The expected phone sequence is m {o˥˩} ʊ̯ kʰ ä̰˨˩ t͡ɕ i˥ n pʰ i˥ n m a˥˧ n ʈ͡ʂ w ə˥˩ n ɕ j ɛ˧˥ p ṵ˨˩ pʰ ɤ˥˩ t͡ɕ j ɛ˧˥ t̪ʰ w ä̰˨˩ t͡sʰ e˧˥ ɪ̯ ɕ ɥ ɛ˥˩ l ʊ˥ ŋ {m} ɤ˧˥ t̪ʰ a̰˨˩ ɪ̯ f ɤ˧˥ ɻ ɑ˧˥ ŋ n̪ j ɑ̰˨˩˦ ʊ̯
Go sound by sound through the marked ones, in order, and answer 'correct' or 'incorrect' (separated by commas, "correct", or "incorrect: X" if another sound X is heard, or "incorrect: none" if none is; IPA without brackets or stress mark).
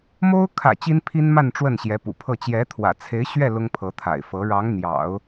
incorrect: o˥, incorrect: pʰ